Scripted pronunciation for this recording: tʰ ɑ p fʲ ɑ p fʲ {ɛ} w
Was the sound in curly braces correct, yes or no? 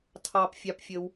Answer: no